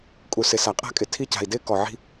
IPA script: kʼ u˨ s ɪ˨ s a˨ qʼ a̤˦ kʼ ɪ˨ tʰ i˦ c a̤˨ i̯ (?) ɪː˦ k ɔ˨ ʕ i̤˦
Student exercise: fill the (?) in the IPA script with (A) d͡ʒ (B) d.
B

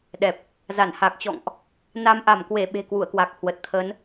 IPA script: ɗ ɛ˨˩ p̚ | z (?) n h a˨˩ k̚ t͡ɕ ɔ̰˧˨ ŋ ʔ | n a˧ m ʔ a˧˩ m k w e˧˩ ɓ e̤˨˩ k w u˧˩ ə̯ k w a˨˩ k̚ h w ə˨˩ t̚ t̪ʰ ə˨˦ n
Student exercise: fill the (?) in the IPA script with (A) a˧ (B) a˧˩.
B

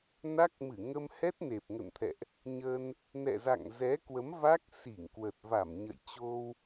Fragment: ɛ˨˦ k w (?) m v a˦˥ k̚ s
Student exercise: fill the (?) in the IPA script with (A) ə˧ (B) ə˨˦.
B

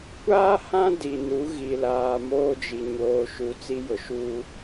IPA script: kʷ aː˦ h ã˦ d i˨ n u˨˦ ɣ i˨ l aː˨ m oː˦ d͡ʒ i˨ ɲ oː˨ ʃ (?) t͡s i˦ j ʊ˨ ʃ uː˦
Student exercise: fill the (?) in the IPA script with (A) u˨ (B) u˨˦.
A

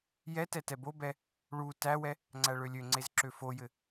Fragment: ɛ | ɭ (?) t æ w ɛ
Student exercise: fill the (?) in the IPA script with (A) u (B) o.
A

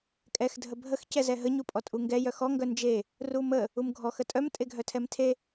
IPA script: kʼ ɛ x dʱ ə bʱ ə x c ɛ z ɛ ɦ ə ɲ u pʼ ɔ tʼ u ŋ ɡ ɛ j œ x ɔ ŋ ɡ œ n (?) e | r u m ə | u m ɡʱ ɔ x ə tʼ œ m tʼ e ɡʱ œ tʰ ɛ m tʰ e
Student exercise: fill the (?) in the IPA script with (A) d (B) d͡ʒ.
B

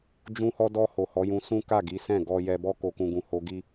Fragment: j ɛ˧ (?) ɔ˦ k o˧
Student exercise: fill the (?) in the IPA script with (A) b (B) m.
A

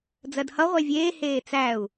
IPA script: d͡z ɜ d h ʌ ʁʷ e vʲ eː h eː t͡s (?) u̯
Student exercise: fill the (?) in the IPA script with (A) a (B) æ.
B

